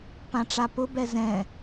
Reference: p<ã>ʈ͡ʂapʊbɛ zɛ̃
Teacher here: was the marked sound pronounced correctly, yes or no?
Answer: yes